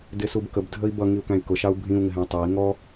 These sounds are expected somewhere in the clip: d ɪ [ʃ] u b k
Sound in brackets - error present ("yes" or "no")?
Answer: yes